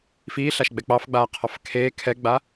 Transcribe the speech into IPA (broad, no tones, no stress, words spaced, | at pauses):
fiːɬaʃɡ͡bɛ k͡pɑfɡ͡baːqʰɑf kʰeː kʰɛɡ͡ba